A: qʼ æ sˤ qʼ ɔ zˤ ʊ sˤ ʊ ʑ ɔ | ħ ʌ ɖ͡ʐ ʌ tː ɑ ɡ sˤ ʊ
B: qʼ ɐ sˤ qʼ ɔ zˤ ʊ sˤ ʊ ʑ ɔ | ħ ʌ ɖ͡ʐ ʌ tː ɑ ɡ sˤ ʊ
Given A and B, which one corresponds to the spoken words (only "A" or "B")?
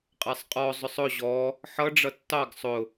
A